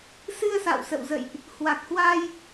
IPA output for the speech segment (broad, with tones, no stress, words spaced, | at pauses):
sɨ˧ə̯sa̰˧˨wsə̰˧˨wzə̰˧˨jʔ | hwa˨˩k̚hwa˧j